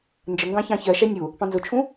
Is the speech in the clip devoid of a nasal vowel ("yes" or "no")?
no